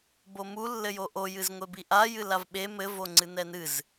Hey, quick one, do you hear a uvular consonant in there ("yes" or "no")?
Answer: no